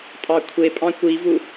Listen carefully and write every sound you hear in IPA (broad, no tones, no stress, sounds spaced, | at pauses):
tʼ ɑ kʷʰ e pʼ ɑ̃ kʷ i v u